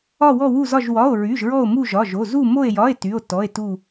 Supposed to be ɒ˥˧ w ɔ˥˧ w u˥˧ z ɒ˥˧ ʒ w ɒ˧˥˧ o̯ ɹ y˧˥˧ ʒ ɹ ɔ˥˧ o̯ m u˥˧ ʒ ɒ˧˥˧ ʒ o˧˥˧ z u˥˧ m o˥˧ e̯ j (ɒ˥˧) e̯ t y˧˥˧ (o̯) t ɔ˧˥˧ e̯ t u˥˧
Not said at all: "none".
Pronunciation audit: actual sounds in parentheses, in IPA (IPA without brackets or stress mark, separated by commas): ɒ˧˥˧, o̯